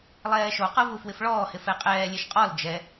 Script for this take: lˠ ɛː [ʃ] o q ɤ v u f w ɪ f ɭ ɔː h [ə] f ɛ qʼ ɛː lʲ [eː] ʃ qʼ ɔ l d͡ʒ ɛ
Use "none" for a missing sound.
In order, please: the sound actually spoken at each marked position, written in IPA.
ʃ, ɪ, e

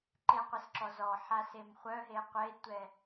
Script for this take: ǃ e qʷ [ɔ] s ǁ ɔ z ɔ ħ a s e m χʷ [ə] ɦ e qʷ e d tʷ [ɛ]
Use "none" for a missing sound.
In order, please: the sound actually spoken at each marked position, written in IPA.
ə, œ, ɛ

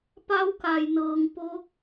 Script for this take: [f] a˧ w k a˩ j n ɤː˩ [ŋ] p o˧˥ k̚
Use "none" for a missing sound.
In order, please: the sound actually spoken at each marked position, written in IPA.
p, ŋ

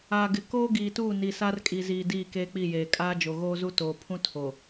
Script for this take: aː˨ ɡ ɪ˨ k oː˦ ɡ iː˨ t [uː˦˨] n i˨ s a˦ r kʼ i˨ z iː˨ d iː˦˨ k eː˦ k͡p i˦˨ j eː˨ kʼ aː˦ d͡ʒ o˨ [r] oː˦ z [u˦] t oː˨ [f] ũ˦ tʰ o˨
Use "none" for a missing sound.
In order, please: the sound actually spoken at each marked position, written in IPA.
uː˦˨, ɣ, u˦, pʰ

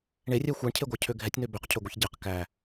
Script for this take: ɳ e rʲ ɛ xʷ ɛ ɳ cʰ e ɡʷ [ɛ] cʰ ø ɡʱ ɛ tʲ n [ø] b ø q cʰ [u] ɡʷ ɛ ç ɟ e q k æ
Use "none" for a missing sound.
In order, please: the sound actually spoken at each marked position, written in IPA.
æ, ø, ø

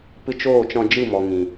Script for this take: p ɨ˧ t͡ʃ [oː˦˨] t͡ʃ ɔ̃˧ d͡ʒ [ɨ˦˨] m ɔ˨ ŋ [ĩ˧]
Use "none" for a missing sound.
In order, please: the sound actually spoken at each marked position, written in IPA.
oː˦˨, ɨ˦˨, ĩ˨

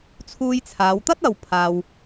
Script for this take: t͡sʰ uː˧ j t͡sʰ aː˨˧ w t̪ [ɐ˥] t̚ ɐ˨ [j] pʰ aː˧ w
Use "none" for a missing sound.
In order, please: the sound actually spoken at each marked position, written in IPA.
ɐ˥, w

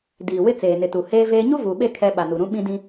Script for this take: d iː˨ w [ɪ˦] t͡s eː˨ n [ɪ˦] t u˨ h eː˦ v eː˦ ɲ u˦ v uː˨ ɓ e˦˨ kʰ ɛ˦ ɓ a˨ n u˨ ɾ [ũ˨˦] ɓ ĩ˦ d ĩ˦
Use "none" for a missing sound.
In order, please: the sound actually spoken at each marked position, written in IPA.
ɪ˦, ɪ˨, ũ˦

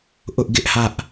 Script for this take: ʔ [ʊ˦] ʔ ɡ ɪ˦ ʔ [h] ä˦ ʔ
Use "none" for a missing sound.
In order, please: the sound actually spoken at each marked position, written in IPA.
ʊ˦, h

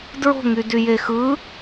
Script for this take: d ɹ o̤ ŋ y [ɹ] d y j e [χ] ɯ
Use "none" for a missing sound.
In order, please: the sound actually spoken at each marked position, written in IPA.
none, x

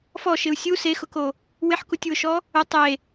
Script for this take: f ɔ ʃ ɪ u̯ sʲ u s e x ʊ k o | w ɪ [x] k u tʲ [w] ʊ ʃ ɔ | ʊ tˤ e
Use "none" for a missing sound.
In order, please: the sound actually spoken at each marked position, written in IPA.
ħ, w

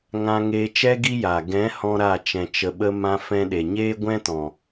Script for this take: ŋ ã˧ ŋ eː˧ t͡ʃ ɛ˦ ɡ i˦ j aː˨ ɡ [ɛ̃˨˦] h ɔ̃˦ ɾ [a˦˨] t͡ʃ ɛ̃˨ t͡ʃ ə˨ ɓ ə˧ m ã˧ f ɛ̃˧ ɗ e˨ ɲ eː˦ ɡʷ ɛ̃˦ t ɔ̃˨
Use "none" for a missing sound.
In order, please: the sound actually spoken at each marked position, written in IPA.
ɛ̃˨˦, a˦˨

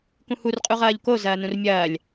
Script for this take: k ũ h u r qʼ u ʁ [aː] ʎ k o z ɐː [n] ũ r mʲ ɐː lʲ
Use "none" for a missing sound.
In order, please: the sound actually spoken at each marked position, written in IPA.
ɐː, n

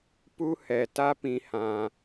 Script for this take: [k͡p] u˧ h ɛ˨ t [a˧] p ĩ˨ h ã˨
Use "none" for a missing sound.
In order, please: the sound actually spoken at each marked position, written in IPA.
p, a˧

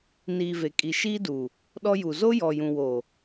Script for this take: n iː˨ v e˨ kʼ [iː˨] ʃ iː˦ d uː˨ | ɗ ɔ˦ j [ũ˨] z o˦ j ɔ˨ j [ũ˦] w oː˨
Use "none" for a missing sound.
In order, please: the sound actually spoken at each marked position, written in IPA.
i˨, u˨, ũ˨

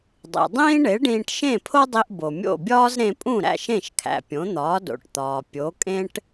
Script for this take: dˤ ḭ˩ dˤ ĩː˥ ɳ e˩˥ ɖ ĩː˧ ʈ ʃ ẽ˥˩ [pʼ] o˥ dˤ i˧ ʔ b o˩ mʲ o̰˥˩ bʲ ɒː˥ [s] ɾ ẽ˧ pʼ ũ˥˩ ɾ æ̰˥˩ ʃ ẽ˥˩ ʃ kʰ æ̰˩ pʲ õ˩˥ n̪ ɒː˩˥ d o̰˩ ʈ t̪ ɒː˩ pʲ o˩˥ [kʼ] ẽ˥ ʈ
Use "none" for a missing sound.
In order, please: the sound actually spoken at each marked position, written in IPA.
pʰ, z, kʼ

